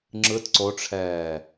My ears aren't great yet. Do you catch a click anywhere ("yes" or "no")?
yes